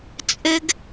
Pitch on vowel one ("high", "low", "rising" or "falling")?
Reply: high